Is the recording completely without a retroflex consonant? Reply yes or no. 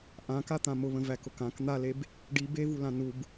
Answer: no